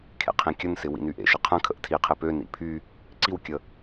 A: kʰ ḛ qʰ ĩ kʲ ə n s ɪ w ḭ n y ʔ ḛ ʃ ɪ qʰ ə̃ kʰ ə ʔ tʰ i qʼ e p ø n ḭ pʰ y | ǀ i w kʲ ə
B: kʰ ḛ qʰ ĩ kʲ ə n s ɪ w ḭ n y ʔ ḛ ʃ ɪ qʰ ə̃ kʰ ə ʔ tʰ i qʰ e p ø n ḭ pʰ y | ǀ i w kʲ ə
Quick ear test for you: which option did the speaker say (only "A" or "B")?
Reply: B